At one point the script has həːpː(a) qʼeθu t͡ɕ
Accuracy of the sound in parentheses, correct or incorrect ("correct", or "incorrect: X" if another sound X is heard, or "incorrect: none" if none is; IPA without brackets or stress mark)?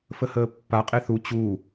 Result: correct